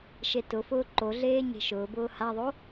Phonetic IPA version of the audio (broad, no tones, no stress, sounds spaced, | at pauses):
ʃ e t ʊ f ʊː ǃ o ɮ eː ɲ e̤ ʃ ʊː b ʊː h a ðˤ o